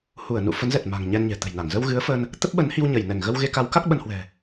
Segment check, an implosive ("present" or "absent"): present